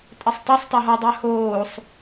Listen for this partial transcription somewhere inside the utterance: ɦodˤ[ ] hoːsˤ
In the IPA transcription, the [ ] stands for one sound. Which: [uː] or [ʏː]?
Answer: ʏː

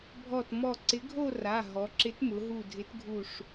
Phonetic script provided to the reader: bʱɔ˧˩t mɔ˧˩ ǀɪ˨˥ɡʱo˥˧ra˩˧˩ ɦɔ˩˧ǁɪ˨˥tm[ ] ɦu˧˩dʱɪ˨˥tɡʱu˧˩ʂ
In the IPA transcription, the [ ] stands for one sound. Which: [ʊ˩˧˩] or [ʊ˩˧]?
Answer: ʊ˩˧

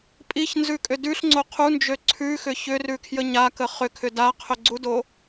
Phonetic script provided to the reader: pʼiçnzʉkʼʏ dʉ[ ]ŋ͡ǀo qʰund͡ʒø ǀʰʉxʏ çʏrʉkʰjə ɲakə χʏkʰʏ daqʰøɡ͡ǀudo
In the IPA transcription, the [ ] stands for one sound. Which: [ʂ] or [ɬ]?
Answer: ɬ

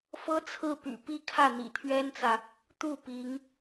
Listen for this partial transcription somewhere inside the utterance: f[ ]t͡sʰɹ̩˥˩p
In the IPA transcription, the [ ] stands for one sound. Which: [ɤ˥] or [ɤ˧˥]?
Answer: ɤ˥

